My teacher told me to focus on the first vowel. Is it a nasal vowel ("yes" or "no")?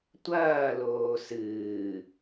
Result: no